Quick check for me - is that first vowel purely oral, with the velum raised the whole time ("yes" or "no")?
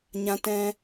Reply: no